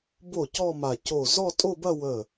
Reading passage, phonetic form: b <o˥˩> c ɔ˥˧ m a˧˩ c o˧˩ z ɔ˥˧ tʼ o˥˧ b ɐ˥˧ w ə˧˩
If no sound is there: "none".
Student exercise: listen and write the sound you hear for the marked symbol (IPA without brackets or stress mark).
o˥˩